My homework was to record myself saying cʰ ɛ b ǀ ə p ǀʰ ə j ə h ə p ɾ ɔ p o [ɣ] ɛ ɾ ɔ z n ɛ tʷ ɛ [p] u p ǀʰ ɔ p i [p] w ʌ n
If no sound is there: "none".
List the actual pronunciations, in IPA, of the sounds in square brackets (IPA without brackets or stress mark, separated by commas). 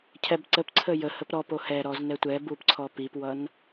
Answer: h, b, p